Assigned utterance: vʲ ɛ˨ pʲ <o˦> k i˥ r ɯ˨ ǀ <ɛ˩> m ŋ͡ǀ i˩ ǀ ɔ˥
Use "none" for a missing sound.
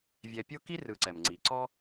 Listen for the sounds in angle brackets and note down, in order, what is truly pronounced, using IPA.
o˦, ɛ˩

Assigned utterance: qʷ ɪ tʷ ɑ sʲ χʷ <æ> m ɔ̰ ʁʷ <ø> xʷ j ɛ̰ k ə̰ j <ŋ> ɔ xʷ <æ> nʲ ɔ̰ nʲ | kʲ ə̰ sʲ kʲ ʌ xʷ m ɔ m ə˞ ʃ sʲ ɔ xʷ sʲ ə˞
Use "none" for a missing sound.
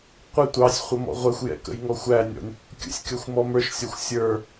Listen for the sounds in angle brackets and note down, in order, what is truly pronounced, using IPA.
ə, ɛ, ŋ, æ

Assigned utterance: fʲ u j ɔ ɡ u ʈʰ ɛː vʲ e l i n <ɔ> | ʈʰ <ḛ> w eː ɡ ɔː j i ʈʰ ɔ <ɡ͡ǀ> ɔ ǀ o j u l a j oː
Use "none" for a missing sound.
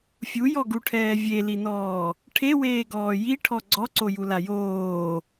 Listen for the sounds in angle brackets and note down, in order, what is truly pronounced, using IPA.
ɔː, e, ɡ͡ǀ

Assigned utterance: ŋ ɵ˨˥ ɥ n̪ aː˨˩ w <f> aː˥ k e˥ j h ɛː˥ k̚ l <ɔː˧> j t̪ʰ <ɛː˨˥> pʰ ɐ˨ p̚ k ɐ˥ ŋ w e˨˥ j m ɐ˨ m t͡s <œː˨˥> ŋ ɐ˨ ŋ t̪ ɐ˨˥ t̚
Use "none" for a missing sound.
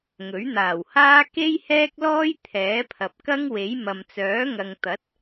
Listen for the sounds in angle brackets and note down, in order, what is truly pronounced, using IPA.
h, ɔː˥, ɛː˨˥, œː˨˥

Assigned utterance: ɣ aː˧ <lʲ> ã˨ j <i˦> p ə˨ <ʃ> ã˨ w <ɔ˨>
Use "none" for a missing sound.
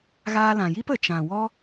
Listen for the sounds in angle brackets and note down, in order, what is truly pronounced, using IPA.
l, i˦, t͡ʃ, ɔ˦

